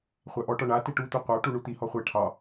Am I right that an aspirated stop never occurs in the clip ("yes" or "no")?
no